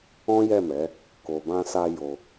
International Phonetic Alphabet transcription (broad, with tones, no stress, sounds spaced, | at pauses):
ɔ̃˦ j ɛ˦˨ m ɛ˨˦ | k o˨ b ã˧ s a˧ j o˧